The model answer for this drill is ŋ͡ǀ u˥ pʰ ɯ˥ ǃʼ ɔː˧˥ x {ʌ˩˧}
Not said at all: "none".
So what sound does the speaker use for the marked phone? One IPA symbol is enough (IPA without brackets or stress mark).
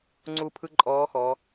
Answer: ɔ˩˧